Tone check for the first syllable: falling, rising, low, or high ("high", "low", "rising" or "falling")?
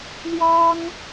high